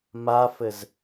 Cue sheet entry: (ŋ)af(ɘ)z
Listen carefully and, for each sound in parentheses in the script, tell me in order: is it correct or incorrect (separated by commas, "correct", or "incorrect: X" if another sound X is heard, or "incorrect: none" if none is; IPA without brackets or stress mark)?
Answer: incorrect: m, correct